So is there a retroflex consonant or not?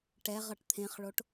yes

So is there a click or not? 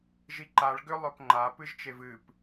yes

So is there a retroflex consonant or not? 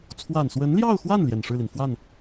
yes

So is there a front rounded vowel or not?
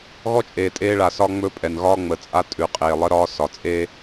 no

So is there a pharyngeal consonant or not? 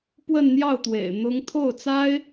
no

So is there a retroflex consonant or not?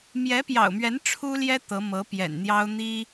yes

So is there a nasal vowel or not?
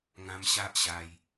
yes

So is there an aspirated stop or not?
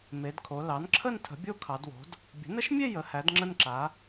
yes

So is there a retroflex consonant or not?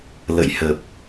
no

